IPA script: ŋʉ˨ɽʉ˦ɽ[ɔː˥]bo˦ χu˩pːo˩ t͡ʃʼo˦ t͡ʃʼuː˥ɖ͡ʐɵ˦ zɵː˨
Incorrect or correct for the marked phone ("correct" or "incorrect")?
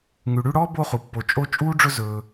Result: correct